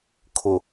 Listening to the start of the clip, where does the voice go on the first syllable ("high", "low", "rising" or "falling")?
low